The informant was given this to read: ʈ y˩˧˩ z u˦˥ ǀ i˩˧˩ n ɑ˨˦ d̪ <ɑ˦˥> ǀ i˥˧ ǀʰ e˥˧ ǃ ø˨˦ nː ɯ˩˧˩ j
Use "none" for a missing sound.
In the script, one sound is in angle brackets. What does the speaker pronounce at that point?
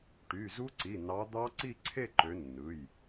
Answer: ɑ˦˥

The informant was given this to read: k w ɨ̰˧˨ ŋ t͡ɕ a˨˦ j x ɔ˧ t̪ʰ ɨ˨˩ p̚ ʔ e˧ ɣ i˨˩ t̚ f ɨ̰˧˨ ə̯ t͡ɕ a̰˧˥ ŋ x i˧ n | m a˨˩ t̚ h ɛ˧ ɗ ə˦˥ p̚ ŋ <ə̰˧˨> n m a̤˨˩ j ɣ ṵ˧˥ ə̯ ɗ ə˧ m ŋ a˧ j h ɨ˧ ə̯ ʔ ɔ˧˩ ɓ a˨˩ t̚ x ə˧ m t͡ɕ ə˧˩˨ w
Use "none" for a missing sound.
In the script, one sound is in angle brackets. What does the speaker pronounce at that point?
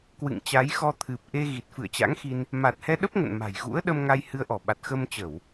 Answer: ə̰˧˨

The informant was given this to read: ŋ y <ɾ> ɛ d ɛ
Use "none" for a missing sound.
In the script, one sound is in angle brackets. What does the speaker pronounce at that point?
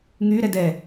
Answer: ɾ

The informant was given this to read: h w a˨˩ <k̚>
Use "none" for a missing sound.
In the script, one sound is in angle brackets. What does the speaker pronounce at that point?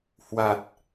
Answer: t̚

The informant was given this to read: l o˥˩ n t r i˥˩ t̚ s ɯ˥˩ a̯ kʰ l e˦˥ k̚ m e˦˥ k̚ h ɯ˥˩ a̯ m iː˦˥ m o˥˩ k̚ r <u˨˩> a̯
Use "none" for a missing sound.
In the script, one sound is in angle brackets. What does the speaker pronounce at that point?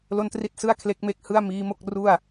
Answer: u˥˩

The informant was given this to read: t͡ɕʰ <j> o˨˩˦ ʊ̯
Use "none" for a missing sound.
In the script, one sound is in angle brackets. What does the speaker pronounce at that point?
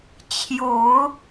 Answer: j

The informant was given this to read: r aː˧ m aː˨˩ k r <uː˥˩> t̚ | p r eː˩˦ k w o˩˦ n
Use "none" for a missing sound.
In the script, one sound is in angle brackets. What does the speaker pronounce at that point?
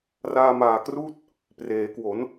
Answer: uː˥˩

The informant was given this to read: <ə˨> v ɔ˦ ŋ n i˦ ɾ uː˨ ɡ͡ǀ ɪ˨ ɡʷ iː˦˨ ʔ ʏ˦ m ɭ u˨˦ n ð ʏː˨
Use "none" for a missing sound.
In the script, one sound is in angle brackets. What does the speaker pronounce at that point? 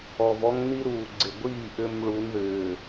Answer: ɔ˨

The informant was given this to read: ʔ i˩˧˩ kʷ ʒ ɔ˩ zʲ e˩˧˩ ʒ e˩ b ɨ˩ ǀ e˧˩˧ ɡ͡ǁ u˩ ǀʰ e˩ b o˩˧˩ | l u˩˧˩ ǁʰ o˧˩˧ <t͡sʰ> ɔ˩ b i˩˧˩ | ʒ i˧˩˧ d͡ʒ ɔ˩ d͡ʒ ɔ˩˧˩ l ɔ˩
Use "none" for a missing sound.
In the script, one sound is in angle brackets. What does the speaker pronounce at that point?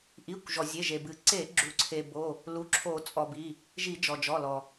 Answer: t͡sʼ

